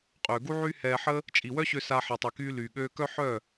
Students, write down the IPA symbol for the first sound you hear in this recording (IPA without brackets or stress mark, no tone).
qʼ